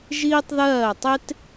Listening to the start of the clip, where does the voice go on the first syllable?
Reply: high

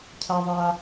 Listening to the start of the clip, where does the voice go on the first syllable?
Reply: low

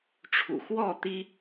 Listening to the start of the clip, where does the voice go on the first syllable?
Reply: low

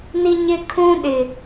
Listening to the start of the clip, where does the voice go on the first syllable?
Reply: high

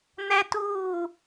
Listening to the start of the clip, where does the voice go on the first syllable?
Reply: high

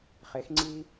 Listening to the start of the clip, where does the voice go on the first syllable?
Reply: rising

